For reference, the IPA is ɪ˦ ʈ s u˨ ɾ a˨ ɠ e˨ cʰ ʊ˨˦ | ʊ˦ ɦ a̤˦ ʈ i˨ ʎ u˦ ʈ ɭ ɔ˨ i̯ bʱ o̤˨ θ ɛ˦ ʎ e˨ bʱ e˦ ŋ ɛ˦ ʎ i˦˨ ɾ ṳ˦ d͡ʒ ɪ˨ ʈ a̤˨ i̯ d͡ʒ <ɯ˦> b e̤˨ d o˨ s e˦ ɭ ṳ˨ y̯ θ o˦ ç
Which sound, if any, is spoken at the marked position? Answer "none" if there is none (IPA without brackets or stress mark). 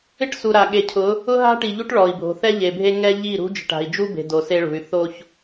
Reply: u˦